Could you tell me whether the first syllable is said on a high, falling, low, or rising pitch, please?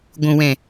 low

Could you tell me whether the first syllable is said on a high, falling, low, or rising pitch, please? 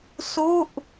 falling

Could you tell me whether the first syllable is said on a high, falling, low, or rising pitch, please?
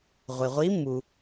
low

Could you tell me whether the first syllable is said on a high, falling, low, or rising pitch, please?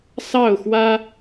falling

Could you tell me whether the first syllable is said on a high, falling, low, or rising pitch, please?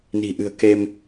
low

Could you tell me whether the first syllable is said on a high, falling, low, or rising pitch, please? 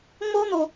high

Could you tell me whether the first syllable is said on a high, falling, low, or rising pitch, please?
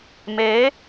rising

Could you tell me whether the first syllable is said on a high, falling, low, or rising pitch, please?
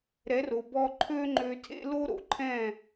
rising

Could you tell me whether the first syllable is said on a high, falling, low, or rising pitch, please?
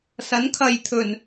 rising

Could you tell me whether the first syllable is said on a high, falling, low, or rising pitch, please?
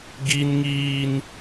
high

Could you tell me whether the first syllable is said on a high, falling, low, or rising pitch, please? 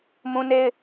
high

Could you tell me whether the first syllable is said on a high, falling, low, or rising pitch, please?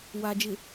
low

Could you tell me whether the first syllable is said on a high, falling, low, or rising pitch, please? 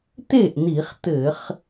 falling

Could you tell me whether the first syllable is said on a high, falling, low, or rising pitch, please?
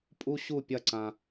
high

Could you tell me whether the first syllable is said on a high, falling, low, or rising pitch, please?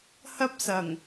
high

